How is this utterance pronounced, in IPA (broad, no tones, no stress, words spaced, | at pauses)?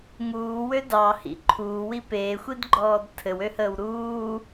ŋuːwø dɑhḭ ǃʰuːwi peːxʷidɡ͡ǃɔːd tʰɘwøhəːw ɾuː